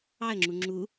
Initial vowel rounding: unrounded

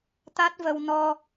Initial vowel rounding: unrounded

